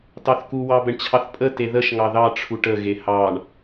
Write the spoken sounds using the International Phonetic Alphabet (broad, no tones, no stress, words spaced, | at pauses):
tɑθku wɑbəɳt͡ɕʰɑθpʼə teðəʃ ŋɑðɑ ʈ͡ʂʰuʈə ɣehɑɳ